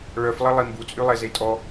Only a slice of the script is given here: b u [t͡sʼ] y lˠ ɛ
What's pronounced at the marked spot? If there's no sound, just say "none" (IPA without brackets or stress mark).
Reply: t͡sʼ